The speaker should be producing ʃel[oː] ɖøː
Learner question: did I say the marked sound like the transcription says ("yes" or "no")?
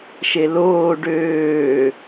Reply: yes